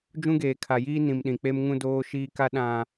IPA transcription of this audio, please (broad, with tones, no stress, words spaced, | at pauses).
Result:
d͡ʒũ˦ɡeː˨kʰa˨jiː˦ nĩ˨m ɗĩ˨k͡pe˦m ŋũ˦doː˦ʃiː˦ka˦ ɗã˨